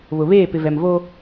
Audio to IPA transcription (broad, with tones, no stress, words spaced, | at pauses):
βʊ˨βeː˦˨ pɪ˨vɛ˨mvoː˦